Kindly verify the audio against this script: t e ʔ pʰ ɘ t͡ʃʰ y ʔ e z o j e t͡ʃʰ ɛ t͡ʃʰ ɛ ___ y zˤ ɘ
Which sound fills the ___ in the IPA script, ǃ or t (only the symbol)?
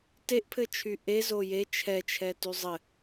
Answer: t